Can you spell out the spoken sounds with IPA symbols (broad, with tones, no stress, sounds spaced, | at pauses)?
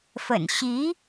f ə̰˨˩ n ɕ i˧˥